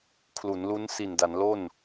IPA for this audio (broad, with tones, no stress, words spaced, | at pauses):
kʰlu˩˦nlu˦˥n si˨˩nda˩˦nlo˥˩n